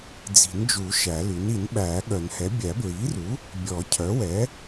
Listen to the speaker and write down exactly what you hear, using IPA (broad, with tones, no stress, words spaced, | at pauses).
d͡zi̤˨˩˦nd͡ʒu˨˩˦ ʃæ˨˩˦lʉ˩˥n i˨˩˦nɓæː˨˩˦ɠœ˨˩˦nhɛ˩˥ bʲæ˨˩˦bɹiː˩˥ru˩˥ | bʲɔ˨˩˦cʰœ˩˥wɛ˩˥